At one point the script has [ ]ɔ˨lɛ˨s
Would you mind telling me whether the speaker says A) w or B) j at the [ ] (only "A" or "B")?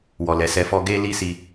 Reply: A